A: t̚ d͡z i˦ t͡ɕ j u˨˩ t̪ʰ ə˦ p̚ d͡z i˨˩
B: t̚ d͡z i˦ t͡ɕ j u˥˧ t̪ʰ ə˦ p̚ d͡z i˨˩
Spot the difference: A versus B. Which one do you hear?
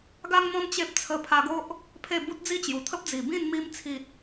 A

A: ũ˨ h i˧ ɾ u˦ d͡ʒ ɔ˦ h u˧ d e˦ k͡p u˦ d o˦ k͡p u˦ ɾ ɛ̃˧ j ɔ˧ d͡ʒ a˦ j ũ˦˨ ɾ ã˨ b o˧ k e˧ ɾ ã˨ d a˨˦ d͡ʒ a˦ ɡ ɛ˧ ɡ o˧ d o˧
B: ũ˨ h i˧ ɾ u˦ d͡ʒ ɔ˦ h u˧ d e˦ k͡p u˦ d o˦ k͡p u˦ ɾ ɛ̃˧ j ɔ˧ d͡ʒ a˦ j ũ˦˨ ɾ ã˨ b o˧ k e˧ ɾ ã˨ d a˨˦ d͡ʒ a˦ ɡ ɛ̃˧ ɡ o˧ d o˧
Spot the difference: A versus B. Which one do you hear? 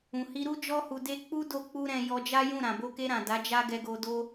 A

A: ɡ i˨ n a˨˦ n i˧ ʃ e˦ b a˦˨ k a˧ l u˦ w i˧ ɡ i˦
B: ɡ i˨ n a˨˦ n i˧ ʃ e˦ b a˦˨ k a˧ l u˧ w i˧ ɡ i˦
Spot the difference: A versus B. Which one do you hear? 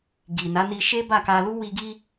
A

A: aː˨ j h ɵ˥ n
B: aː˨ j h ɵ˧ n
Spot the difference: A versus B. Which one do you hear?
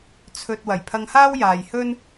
A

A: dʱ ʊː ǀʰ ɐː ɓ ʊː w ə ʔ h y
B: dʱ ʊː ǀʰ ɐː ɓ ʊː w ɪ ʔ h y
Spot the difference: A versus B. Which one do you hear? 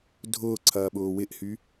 B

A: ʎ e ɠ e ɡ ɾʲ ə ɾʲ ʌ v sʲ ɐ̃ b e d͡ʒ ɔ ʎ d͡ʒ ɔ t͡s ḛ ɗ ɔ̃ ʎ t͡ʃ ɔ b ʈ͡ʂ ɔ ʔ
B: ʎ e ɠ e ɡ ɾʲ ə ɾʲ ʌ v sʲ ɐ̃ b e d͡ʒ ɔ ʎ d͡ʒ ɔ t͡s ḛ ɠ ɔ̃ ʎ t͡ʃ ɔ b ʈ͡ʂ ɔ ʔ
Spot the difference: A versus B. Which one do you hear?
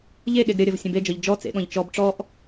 B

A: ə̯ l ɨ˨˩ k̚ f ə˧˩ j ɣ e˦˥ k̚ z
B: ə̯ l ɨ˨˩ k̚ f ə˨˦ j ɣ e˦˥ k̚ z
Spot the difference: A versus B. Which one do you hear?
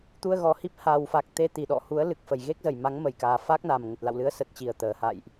A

